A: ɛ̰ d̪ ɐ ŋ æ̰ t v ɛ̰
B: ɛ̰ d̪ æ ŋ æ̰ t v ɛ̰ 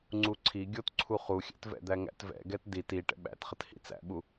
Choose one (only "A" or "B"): B